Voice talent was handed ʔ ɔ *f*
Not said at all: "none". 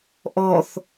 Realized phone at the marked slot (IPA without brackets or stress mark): θ